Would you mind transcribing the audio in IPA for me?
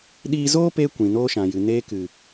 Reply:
ɗ iː˧ z oː˦ p eː˧ kʷ ĩ˨ n oː˦ ʃ ã˨ j ɨ˨ n eː˧ k ɨ˨

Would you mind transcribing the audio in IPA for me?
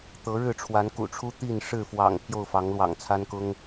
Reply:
t̪ ɤ˨˦ ɻ ɻ̩˥˨ ʈ͡ʂʰ w a˨˦ n k ṵ˨˩ ʈ͡ʂʰ u˦ t̪ i˥˨ n ʂ ɻ̩˥˨ f w ɑ̰˨˩ ŋ pʰ j o˥˨ ʊ̯ f ɑ˨˦ ŋ l w ɑ̰˨˩ ŋ t͡sʰ a˦ n k ʊ˦ ŋ

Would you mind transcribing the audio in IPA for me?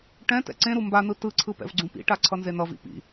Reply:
ʈ ɛ̃ t ɛ̰ ǀ ẽ ɾ u m b a n ɯ t ɯ ǀʰ ɯ p ɛ̰ v ɡ͡ǀ ũ p ḭ ʈ a ǀʰ ʌ n z e n ʌ v ḭ p ḭ

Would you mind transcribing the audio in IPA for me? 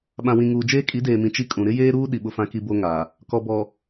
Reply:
ɓ ã˨ w ĩ˨ ŋ uː˨ d͡ʒ eː˦ kʼ i˨˦ d eː˨ m ĩ˨ t͡ʃ i˦ kʼ ũ˨ ɾ ɪ˦ j eː˦ ɾ uː˦ ɗ i˨ ɓ ʊ˦ f ã˦ k i˦ b o˦ ŋ a˨ | k ɔ˨ b ɔ˨

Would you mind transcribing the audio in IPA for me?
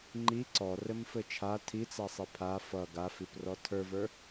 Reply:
ŋ͡ǃ i ǀ ɔ r ɘ m f ɘ t͡ʃʰ a tʰ i t͡s a sˤ i pʰ a f ʌ ɡ a f i p r ɔ tʰ ə˞ v ə˞

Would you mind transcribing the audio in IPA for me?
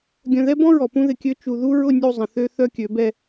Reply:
ɡʲ œ̃˨ ð ɛ˦ b ɔ̃˦ ɹ ɔ˨ p ũ˦ ð ɪ˨ kʲ ø˦ t͡ʃ u˨ ð u˦ ɹ ʊ˦˨ nʲ u˦˨ zˤ ə̃˨ θ ø˦ θ œ˦ kʲ ø˨˦ b ɛ˦

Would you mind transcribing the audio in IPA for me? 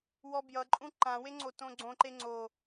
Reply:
w ɔ b j ʌ ǃʼ ũ ǃ ã w e ŋ͡ǀ o t õ ɡ͡ǀ õ ǃ e ŋ͡ǀ o

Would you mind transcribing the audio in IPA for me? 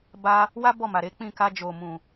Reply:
b a˧ | w a˦ b ɔ˦˨ m a˨ ɾ e˨˦ k͡p ĩ˦˨ k a˧ d͡ʒ o˨ m ũ˨

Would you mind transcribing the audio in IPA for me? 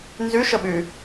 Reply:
n z y ʃ ə ɓ y

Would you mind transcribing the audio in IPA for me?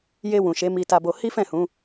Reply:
j e˧ w ũ˨ ʃ e˨˦ m i˧ t a˧ b o˧ h i˦ f ɛ̃˦˨ h ũ˨˦

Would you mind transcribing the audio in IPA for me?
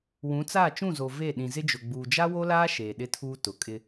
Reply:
w ũ˨˦ t͡s aː˦˨ t͡ʃ ũ˦˨ z o˨ v e˦˨ ɗ ĩ˨ z ɪ˦ d͡ʒ ʊ˨ ɡ͡b uː˨ d͡ʒ a˦ w o˦ l aː˦ ʃ eː˨ ɗ ɪ˦ tʰ uː˦ t ʊ˨ kʼ ɪ˦

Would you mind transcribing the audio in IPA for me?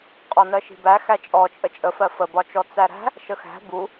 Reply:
qʼ ɔ n ɜ ʃ i̤ b æ x æ t͡ʃʼ ɔ t͡ʃʼ ə t͡ʃʼ ə f ɜ f ə b ɒ t͡ʃ ɔ t͡s æ ɾ æ̤ | ʃ ə x æ̤ b u

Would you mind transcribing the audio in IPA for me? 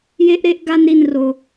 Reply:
j e˦ ʔ ɾ e˦ ʔ ɡ a˦ n ɾ i˦˨ n r o˨

